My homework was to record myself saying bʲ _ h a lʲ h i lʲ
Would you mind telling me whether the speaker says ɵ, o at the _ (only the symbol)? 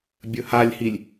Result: ɵ